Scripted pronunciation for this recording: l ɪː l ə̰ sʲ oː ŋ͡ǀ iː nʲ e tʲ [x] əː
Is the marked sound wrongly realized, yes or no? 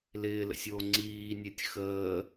no